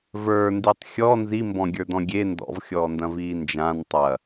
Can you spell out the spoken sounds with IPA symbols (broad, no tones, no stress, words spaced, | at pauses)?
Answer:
və˞nditˤ xʲɔ nzimbɔ̃ɡʲə˞dɔ̃ ɡʲe ndɔ̰vxʲɔːndɐ̃viː nd͡ʒãn tˤɐ